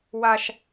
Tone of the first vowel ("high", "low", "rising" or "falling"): high